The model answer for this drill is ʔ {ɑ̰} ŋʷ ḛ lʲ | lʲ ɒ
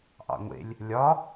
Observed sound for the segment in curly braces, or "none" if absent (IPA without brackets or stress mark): ɑ̰